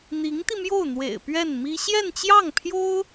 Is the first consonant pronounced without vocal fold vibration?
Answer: no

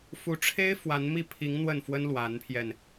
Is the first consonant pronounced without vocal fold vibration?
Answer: yes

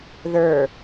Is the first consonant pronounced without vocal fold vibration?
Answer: no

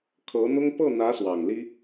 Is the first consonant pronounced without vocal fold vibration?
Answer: yes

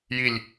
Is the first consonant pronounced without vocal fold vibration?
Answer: no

